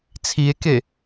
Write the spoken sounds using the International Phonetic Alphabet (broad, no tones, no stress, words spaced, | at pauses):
t͡sʰie̯ke